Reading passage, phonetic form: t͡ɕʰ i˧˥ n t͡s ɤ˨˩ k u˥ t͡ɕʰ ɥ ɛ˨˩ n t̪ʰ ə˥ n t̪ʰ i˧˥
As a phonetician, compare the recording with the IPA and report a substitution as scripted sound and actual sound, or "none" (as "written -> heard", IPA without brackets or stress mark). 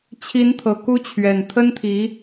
t͡s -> t̪ʰ